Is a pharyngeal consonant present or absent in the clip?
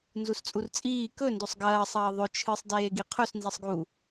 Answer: absent